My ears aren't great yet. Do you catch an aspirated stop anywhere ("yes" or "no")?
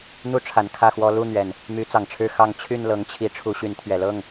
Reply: yes